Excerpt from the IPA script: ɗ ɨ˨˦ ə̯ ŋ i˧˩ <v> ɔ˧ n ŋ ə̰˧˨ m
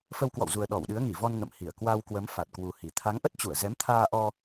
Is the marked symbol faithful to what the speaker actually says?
yes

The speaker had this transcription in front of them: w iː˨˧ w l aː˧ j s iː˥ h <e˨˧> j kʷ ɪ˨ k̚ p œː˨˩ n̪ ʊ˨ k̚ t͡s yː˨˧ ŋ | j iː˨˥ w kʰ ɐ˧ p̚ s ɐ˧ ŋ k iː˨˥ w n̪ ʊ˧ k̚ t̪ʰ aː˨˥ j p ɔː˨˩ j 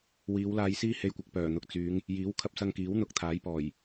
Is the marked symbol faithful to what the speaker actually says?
no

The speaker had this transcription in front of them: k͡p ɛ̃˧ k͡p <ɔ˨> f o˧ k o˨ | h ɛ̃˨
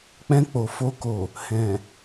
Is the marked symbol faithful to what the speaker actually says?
no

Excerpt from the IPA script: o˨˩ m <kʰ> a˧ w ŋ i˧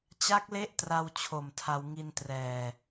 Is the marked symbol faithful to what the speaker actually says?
no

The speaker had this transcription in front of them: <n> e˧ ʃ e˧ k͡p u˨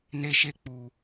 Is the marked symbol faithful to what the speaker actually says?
yes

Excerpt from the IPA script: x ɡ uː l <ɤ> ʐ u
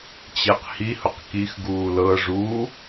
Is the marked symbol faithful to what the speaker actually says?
yes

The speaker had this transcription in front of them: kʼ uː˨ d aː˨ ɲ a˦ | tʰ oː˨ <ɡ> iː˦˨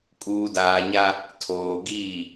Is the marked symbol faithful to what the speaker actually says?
yes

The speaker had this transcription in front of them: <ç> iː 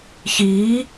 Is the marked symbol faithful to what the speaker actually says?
yes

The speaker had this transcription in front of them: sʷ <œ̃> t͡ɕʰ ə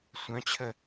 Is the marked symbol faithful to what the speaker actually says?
yes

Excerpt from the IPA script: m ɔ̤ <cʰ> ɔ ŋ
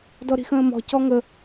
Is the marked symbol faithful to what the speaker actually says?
no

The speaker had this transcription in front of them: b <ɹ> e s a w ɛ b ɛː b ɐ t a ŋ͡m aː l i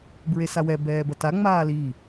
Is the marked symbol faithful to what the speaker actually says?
yes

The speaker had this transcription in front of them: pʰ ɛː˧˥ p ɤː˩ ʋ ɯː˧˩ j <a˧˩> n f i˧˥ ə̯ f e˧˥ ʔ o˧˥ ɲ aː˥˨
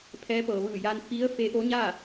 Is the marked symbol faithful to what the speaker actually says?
no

